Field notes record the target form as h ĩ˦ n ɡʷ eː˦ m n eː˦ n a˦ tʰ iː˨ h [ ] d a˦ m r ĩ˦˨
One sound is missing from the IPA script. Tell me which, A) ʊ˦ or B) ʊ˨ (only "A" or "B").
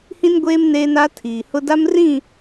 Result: A